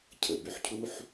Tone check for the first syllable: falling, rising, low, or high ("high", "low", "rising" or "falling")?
low